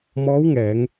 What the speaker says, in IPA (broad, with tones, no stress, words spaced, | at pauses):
mɔː˧˥wŋɛː˩˧ŋ